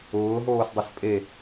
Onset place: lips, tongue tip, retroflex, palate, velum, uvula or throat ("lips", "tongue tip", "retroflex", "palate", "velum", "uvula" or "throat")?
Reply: throat